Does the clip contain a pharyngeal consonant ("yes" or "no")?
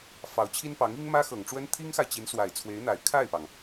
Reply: no